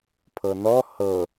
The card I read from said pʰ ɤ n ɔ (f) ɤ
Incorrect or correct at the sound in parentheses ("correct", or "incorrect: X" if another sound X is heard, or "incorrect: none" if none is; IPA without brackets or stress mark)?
incorrect: h